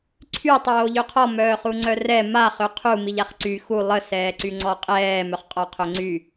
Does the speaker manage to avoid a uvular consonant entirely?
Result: no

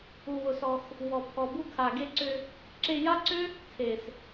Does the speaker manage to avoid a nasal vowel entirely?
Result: yes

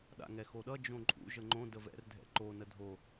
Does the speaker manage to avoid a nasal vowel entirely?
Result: no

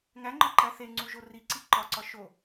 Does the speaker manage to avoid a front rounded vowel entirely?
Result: yes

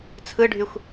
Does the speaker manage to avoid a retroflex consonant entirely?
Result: no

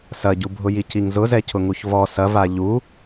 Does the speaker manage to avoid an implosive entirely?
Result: yes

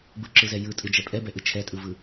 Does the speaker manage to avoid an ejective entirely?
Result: no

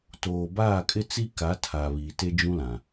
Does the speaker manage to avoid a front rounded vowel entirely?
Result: yes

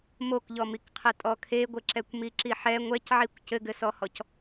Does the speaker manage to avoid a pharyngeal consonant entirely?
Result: no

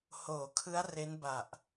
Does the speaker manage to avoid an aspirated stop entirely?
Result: no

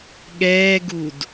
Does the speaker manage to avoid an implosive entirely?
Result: no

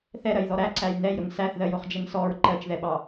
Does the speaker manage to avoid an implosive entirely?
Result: no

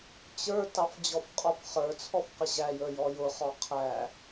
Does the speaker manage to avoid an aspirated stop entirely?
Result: no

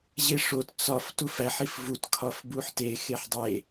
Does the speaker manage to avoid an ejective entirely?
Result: yes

